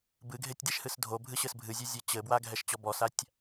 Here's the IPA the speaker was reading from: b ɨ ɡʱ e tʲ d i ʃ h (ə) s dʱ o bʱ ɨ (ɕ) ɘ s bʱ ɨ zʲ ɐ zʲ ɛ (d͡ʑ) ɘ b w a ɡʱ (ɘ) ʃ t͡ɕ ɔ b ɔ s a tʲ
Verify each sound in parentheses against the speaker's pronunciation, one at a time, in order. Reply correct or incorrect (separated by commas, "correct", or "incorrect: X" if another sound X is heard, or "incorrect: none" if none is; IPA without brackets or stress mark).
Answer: incorrect: ɨ, correct, incorrect: t͡ɕ, incorrect: ɛ